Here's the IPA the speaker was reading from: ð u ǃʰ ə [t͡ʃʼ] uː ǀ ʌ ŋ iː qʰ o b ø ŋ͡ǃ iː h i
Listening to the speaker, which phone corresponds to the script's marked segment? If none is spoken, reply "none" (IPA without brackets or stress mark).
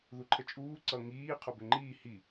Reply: t͡ʃʼ